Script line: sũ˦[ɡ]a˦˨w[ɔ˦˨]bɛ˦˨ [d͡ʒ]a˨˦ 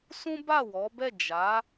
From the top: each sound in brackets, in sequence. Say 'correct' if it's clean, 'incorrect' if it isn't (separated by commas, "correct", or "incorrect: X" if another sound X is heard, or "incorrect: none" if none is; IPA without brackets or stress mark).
incorrect: b, incorrect: ɔ˨˦, correct